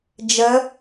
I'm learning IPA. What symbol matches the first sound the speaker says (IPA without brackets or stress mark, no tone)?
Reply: d͡ʒ